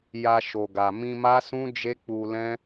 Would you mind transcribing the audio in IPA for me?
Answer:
ja˧ʃo˨ɡa˨ mĩ˧ma˦sũ˦ d͡ʒe˦k͡pu˧lɛ̃˦

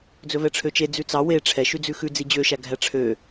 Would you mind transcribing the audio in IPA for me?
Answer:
d͡zɵvɛʈ͡ʂʰøt͡ʃe d͡zʉt͡sɑ we ʈ͡ʂʰɛʃʉd͡zʉ xʉ d͡zid͡ʑøʃæ ɡʱæʈ͡ʂʰø

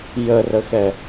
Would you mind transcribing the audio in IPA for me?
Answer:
jərəxɛ

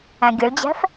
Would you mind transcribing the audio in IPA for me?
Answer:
æ̃ɡʲəɭd͡ʑæ̤f

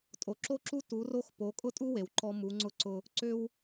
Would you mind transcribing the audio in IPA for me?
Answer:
tʼo˨ǁo˦ǁu˦ tu˨˦ro˦x po˨˦kʼʊ˦tʼu˦ we˨w ǃɔ˦ mu˨˦ŋ͡ǀʊ˦ǀʊ˦ | ǀʏ˦w

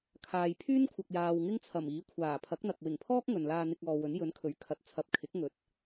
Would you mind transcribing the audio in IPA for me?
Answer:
kʰaː˨j pʰyː˥nkʷʰɐ˨k̚jaː˨w ŋɪ˥ŋt͡sʰɐ˨˩miː˨˥ kʷʰaː˨˩pʰɐ˨˥k̚n̪ɐ˨k̚ wɪ˨˩ŋpʰɔː˥k̚ ŋɵ˨nlaː˧ n̪ɪ˧k̚ɔː˨wɵ˨˥n jɵ˨˥nkʰɵ˨˥ɥkʰɐ˨˥t̚ t͡sʰɐ˨p̚ kʰɪ˨˥k̚ŋɵ˨˥t̚

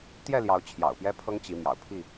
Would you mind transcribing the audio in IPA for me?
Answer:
t̪jɛ˥˨ljɑ˨˦ʊ̯ t͡ɕʰjɑ̰˨˩ʊ̯pjɛ˦pʰɤ˦ŋ t͡ɕi˨˦ mjɑ̰˨˩ʊ̯pʰi˥˨

